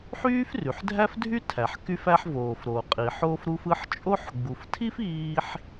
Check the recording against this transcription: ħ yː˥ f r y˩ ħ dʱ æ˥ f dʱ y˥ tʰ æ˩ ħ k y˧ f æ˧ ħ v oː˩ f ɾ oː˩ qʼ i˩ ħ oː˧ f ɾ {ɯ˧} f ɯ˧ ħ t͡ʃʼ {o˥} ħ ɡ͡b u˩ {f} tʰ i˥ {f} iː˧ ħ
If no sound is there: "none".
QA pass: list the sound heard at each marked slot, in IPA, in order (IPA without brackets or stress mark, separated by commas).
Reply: u˧, o˥, f, f